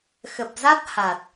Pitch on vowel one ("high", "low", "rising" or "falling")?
low